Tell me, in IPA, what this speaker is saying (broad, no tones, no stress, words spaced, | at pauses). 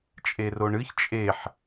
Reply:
t͡ʃʼeroɳɨç t͡ʃʼeħ